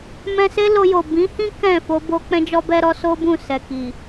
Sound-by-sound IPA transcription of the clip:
mɛ̃˧se˦ lo˧jo˨ bĩ˨˦hĩ˦ kɛ̃˦˨ fo˧bo˧ k͡pɛ̃˦d͡ʒɔ˦bɛ˦ɾɔ˦ so˦bũ˦˨sɛ˨ki˨

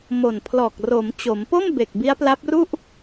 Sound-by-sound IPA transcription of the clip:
mo˨˩npʰlɔː˨˩k̚ro˩˦m t͡ɕo˩˦mpo˥˩mbe˨˩k̚ bi˦˥a̯pla˦˥p̚ru˥˩ʔ

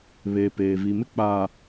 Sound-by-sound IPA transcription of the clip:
βe˨ peː˨vi˨mɪ˦k͡paː˨

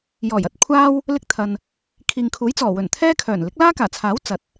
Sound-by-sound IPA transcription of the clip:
jɔː˨˩jɐ˧t̚ kʷʰaː˥w | lɪ˧k̚t̪ʰɐ˨n | kʰiː˨ŋkʰuː˨˥jt͡sɔː˨˩ wɵ˨˩nt̪ʰɛː˥kʰœː˨˩n lɪ˨˥k̚laː˥kaː˨˩t͡sʰaː˨˥w t͡sɐ˨t̚

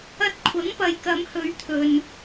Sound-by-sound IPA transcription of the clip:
ɐ˥t̚ kʷʰɐ˨˥ŋpɐ˨jkɐ˨˧mhɵ˨˧ɥ t̪ʰɵ˧n

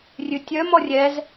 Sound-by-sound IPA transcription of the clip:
rʲʉtʲœm ɔrʲɛz

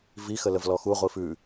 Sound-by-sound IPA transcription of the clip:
vixə ləvlɔxuʁʷi fʉ

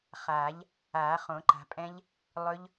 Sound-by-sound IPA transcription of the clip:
χaː˨˩˦ʎ | aː˨˩˦χõ˨˩˦ǃa̤˨˩˦pʼɛ̃˦˥ʎ | lˠɵ˦˥ʎ

